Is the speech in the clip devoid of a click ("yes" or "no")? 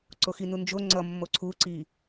no